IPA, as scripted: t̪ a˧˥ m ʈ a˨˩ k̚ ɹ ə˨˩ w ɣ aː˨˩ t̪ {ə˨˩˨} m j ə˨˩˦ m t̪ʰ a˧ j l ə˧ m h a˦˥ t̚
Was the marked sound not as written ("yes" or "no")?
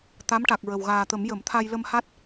yes